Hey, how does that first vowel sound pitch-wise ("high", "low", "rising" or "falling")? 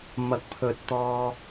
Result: rising